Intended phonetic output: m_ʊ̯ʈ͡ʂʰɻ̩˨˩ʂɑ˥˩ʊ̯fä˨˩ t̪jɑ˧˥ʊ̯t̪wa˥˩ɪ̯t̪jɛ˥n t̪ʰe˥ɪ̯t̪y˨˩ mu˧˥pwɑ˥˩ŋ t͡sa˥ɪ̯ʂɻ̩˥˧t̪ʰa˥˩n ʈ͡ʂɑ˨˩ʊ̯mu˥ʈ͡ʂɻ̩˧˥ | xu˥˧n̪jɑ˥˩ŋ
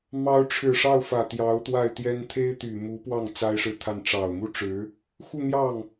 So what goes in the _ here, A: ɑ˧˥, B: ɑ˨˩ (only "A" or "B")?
A